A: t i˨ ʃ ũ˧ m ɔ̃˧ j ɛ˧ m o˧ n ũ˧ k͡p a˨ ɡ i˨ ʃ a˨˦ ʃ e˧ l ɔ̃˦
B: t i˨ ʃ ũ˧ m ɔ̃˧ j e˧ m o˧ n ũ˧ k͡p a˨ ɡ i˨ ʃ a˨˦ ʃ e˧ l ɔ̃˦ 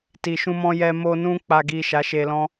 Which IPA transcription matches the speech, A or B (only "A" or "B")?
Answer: A